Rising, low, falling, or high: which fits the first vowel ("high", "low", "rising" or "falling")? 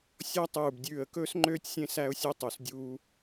falling